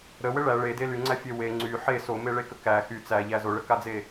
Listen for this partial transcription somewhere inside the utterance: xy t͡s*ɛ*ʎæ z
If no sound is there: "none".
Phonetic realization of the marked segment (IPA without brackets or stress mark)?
æ